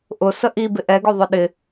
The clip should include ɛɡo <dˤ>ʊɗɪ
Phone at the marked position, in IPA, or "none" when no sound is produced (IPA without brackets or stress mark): ðˤ